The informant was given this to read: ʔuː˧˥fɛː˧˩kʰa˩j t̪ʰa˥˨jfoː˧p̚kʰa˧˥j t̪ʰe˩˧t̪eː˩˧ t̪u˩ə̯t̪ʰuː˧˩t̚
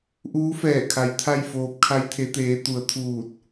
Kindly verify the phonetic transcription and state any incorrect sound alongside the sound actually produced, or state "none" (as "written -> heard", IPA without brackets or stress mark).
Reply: none